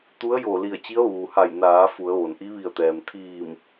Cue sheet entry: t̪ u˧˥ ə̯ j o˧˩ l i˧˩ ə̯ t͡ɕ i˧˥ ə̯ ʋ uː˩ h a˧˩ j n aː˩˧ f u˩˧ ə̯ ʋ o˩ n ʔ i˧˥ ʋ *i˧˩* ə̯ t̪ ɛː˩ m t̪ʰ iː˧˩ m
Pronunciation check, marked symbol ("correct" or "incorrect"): correct